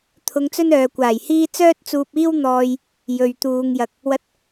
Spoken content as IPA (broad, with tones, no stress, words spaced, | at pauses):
t̪ʰʊ˧ŋt͡sɵ˥n œː˨kʷaː˨˩jhiː˥ t͡sœː˥t̚t͡suː˧p̚iː˥w n̪ɔː˧j | jɵ˨ɥ t̪uː˨ŋ jɐ˨k̚ | wɐ˧t̚